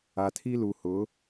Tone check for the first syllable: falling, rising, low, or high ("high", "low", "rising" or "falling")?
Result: low